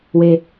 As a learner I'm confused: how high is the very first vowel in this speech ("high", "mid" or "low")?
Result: mid